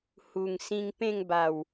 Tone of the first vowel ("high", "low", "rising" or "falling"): low